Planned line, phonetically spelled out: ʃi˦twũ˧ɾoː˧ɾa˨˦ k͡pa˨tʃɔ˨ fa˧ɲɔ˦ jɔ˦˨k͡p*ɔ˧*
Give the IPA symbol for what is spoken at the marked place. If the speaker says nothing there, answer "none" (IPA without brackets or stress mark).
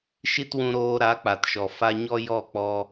ɔ˧